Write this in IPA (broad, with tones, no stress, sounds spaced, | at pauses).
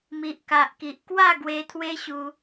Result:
m i˨ ʔ k a˨ ʔ k i˨ ʔ k w a˥˧ ɡ w e˧ t̪ʰ w e˦ ɕ u˧